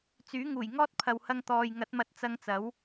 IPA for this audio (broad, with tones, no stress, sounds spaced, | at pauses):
t͡s yː˨˥ ŋ uː˨˩ j ŋ ɔː˥ t̚ pʰ ɐ˨ w h ɐ˧ ŋ t̪ ɔː˨ j ŋ ɐ˨˥ t̚ m ɐ˧ t̚ t͡s ɐ˧ ŋ t͡s ɐ˨˥ w